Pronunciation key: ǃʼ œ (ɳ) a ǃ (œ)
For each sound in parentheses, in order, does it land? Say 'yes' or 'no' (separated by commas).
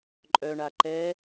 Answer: yes, no